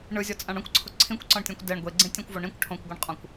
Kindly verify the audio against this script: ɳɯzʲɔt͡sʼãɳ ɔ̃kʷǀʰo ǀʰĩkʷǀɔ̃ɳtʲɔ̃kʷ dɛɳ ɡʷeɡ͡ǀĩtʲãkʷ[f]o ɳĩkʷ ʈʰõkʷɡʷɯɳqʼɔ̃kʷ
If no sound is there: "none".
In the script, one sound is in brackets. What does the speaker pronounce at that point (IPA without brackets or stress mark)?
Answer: v